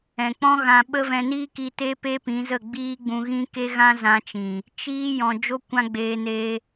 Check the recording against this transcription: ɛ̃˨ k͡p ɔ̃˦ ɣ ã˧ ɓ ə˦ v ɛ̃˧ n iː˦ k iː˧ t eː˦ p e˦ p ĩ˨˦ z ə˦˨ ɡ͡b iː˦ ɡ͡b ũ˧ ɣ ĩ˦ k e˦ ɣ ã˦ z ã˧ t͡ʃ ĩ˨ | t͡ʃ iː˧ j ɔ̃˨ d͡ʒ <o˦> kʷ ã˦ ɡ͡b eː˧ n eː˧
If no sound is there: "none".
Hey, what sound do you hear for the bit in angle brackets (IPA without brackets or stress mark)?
o˦